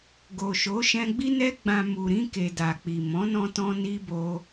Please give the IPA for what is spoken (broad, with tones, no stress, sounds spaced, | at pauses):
ɡ o˨ ʃ o˨˦ ʃ ɛ̃˧ ɡ͡b i˦ n ɛ˦ ɡ͡b ã˧ m u˨ ɾ ĩ˧ k e˨ d a˨ k͡p i˨ m ɔ̃˨˦ n ɔ̃˧ t ɔ̃˧ n i˦ b o˦